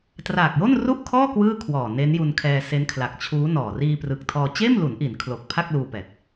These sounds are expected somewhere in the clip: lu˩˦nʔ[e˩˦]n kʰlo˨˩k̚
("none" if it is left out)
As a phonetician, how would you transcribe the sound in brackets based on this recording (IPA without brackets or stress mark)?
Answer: i˩˦